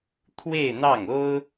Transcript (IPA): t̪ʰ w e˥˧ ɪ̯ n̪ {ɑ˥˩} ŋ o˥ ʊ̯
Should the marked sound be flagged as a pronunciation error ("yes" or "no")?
no